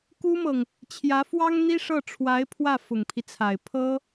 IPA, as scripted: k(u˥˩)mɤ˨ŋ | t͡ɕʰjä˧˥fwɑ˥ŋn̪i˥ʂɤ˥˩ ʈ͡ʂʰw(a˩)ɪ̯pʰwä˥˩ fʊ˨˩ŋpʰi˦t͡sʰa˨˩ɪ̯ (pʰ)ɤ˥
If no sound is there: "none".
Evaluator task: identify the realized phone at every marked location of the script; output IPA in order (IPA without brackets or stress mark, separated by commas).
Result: u˥, a˧˥, pʰ